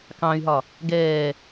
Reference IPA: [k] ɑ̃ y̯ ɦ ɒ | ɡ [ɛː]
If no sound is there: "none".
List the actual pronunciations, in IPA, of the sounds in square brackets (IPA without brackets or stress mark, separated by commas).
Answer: k, ɛː